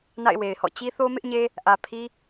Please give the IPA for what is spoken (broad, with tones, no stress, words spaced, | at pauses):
na̰˦˨ɪ̯we˨ɪ̯hɔ̰˦˨ t͡ɕi˦θo˦mɪ˦ʔɲe˦ | ʔä˨pʰi˦